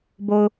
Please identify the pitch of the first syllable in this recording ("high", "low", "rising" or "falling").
low